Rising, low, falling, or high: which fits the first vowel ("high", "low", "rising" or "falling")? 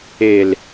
low